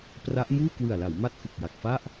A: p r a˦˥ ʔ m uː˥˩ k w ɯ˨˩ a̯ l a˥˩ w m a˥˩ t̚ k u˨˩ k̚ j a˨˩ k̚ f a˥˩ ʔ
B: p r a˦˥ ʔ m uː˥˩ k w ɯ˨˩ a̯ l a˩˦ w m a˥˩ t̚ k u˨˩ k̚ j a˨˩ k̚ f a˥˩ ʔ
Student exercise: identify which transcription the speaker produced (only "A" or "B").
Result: B